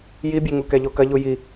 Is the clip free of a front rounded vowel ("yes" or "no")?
yes